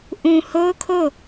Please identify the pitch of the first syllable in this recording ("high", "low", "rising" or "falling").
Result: low